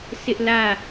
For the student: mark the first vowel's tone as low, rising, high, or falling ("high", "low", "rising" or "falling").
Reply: high